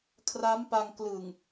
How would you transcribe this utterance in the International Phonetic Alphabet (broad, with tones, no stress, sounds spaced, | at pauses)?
kʰ r a˦˥ m p a˧ ŋ k l ɯ˨˩ ŋ